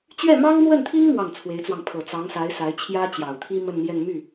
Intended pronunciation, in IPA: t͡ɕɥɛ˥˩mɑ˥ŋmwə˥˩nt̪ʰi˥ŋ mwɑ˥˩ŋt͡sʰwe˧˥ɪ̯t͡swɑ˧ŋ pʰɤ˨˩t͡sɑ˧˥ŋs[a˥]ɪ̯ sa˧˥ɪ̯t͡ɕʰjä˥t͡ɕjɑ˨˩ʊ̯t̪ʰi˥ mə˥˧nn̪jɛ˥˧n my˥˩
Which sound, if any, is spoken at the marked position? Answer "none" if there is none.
a˧˥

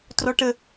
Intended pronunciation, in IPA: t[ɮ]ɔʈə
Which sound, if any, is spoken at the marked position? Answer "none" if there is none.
r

